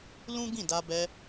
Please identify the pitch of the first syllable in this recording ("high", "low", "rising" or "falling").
high